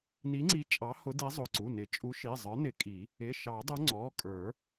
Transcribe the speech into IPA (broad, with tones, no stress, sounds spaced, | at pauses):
n i˨˥ ŋ͡ǀ i˨˥ t͡ʃʼ ɑ˨˥ h ʊ˨˥ d i˨˥ zˤ ʊ˩˧˩ ǀ u˩˧˩ n ɪ˨˩˦ t͡ʃʼ u˨˥ ʃ i˩˧˩ zˤ ə˞˨˥ n ɪ˨˩˦ kʼ i˨˩˦ | ɪ˩˧˩ ʃ ɑ˨˩˦ dˤ ʊ˨˥ ŋ͡ǀ ɔ˩˧˩ kʼ ə˞˨˩˦